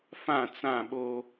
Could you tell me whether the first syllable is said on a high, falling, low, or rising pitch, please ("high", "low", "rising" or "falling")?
falling